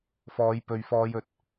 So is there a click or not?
no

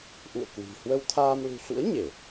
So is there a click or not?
no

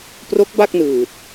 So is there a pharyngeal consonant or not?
no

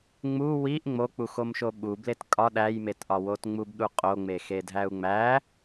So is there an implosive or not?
yes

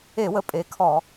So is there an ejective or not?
yes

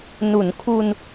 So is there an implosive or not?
no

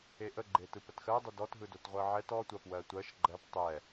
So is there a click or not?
yes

